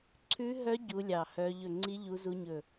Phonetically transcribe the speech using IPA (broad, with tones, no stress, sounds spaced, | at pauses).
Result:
ǀʰ ʉ˦˥ ɦ œ˦˥ ɟ u˦˥ lʲ ɑ˦˨ h œ˦˥ ʎ ɵ˦˨ ŋ͡ǀ i˦˥ ʎ u˦˥ z u˦˥ ɲ ɵ˦˨